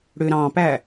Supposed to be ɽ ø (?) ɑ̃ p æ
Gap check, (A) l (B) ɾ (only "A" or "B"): B